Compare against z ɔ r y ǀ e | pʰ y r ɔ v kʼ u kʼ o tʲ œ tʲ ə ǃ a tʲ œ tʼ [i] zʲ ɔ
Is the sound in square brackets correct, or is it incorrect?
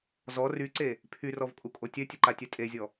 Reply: incorrect